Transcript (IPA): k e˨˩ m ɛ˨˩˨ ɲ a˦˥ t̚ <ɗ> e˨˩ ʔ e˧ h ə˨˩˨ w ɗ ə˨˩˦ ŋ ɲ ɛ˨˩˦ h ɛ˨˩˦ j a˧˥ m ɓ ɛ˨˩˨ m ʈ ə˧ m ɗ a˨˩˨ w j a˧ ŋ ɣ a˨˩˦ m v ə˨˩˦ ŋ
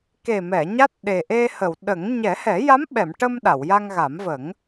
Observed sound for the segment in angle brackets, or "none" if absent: ɗ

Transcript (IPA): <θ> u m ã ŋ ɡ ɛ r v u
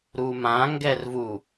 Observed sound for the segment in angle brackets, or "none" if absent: ɾ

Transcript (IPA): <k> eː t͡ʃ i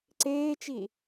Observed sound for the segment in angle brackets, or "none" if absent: ǀ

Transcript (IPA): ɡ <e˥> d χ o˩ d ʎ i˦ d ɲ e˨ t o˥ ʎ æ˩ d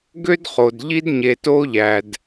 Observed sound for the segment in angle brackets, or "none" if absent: ø˥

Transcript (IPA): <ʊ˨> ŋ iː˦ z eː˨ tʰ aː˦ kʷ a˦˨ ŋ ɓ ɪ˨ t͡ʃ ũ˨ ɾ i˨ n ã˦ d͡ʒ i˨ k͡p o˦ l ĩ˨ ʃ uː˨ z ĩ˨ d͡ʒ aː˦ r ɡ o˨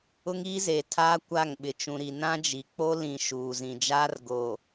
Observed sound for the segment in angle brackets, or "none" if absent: ʊ˦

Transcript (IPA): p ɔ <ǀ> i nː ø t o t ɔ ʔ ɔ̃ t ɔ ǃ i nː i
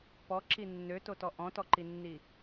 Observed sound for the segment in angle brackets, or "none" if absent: ǁ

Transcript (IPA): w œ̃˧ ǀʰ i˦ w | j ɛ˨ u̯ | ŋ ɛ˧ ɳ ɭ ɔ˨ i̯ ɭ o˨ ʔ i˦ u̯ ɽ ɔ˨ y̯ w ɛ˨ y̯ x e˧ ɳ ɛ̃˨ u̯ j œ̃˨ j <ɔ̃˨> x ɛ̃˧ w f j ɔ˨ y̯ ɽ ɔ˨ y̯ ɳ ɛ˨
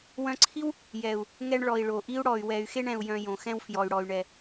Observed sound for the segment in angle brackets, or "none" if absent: õ˨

